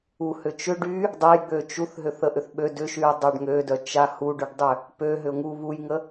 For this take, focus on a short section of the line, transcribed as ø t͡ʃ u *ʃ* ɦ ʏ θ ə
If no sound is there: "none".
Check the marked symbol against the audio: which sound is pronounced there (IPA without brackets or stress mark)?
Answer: θ